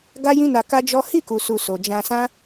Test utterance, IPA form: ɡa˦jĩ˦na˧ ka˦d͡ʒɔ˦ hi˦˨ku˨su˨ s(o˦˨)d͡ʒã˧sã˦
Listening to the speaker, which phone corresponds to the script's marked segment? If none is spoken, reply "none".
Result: o˨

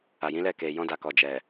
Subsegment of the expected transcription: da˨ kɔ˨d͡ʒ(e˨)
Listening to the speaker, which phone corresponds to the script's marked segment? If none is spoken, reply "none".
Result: ɛ˨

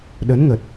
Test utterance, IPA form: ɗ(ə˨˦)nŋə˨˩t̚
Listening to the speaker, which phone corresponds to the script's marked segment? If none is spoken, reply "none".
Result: ə˨˦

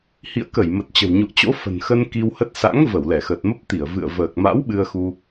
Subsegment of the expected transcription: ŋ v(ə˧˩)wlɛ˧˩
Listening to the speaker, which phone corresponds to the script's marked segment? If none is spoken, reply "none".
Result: ə˧˩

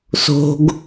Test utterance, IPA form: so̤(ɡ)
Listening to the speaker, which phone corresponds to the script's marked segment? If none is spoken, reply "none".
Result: ɡ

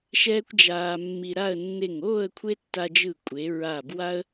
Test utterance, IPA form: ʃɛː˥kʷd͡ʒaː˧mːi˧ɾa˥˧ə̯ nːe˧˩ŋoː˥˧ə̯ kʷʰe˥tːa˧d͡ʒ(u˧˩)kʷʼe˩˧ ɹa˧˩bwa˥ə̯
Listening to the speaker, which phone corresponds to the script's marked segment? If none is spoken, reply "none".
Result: ɯ˧˩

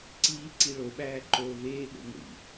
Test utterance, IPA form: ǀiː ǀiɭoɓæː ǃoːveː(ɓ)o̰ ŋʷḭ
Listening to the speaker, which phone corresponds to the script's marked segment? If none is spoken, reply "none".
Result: ɓ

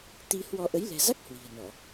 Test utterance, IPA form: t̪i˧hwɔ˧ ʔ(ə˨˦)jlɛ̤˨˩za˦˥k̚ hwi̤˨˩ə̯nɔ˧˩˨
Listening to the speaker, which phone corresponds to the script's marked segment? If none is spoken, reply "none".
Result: ə˨˦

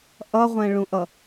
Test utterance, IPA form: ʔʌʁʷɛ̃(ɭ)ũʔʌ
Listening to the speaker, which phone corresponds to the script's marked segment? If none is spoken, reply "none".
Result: ɭ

